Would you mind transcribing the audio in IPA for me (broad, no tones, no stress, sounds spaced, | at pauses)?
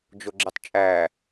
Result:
d͡ʒ o ɡ͡ǁ i tˤ t͡ʃʼ æ